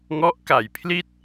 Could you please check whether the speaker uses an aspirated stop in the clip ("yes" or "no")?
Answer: yes